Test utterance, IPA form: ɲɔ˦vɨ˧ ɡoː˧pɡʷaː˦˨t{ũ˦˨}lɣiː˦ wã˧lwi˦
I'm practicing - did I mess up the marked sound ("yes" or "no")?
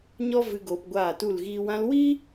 yes